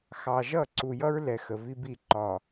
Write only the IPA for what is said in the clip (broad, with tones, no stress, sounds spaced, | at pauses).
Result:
x ɑ˨ ʒ ʌ˦˨ ǀ u˨ j ʌ˦ ɹ l ɛ˨ x ə˨ v i˦ b i˦˨ ǃ ɒ˨